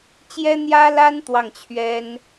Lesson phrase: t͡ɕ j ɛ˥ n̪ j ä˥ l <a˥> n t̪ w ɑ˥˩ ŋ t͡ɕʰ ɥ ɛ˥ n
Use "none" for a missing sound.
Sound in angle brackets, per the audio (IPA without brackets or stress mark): a˥